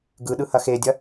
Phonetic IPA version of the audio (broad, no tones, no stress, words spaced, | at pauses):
ɡɯɗɯhɐ xedʲɐ